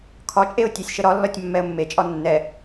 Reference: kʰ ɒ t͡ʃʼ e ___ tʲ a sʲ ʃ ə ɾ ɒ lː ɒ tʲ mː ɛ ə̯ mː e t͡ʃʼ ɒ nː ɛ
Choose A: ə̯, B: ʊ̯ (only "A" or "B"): B